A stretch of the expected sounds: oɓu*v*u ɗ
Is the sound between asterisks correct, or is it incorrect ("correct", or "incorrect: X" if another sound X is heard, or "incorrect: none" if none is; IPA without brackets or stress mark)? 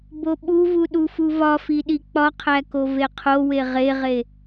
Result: correct